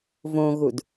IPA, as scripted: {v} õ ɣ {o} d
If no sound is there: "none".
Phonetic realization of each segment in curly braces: v, u

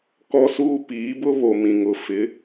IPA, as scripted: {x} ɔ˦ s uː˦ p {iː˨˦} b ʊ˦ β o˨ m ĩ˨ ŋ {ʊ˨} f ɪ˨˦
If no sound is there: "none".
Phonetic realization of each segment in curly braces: k, iː˨˦, ʊ˨

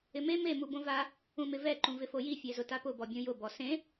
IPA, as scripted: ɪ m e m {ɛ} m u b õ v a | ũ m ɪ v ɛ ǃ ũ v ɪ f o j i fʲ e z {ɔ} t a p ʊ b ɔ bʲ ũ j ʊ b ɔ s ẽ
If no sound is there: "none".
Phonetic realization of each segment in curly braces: e, ʊ

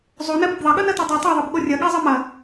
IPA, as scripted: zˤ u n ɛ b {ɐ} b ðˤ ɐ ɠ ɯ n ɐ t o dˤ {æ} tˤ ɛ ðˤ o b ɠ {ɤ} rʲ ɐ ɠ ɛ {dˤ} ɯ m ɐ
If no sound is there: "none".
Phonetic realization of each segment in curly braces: ɐ, ɛ, o, zˤ

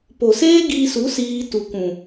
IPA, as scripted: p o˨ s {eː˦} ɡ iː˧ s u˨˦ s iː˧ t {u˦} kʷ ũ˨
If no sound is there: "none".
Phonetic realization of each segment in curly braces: eː˦, u˨

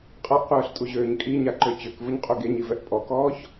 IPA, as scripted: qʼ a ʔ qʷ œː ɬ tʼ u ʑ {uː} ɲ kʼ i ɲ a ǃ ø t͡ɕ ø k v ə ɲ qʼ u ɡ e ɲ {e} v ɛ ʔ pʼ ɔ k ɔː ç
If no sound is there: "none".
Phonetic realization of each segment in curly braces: øː, i

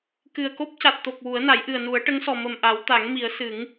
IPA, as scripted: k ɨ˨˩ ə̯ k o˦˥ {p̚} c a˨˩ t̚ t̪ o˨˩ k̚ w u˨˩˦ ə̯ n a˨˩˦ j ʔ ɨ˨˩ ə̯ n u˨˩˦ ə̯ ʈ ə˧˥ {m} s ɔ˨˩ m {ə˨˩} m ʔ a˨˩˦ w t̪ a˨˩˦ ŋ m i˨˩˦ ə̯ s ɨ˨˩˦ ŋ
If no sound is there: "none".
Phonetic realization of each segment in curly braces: p̚, ŋ, ə˨˩

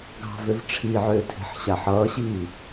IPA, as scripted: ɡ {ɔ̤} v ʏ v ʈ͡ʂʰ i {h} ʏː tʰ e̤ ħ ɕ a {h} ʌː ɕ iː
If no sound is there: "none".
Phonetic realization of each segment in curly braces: ɑ̤, ʕ, ħ

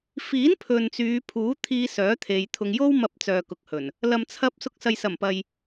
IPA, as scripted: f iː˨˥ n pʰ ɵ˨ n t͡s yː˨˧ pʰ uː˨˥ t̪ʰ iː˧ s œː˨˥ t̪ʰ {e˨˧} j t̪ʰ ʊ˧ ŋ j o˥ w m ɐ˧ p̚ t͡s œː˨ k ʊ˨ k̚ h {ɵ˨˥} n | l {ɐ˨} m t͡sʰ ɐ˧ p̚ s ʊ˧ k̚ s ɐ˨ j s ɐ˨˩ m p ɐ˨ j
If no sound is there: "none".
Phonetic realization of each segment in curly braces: e˨˧, ɵ˨˩, ɐ˨

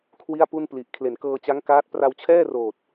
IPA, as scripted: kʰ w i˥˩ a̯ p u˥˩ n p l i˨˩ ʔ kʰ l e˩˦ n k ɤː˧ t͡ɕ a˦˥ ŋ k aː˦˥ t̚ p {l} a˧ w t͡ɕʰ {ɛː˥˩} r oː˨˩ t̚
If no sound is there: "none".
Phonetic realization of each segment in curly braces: r, ɛː˥˩

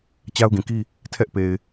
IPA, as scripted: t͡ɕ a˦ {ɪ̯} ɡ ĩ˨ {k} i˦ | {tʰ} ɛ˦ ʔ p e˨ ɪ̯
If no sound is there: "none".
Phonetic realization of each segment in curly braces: ʊ̯, k, tʰ

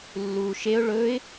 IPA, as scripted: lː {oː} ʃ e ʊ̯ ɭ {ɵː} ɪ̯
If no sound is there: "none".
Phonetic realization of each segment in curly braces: uː, ɵː

